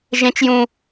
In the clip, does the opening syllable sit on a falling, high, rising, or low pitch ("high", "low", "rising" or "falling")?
high